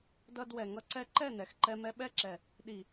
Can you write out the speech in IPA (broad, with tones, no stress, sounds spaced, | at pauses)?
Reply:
d ʌ˧ d w ɛ˨ ŋ ʌ˧ ǀ ɛ˧ ǃ ɛ˦˨ n ɛ˨ x ǃ ɛ˧ m ɛ˧ ɓ ɛ˦˨ ǁ ɛ˨ | ɗ i˨